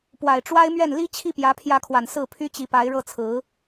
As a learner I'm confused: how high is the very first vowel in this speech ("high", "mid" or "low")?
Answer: low